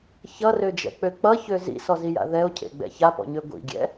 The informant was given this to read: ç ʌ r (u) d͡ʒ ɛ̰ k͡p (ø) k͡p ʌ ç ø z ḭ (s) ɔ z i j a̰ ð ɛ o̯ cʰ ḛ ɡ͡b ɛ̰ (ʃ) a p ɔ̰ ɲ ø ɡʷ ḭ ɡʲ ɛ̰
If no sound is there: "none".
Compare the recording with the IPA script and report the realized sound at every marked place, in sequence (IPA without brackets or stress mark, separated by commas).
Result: ø, ø, s, ç